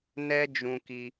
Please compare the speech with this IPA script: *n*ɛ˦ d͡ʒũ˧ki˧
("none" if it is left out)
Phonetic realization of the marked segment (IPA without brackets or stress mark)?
n